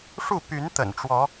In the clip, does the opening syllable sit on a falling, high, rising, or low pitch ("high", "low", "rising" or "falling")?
falling